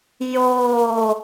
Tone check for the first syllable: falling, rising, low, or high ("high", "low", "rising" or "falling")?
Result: falling